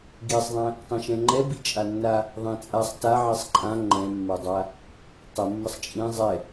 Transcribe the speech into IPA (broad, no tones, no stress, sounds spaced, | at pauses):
ɡ i sˤ ðˤ ɛ̃ | tˤ ɛ̃ ʃ ɛ̃ ŋ͡ǃ ɛ b i t͡ʃʼ a nː a | ðˤ ɛ̃ t͡sʼ a sˤ t a ʕ i sˤ ǃʼ ã ŋ͡ǃ ɛ̃ mː ɜ dˤ a | tˤ ə mː ə sˤ t͡ʃʼ ĩ zˤ ɛ